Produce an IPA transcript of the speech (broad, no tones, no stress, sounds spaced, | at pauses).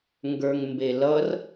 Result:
ŋ ɡ ə˞ ŋ m b e l ʌ r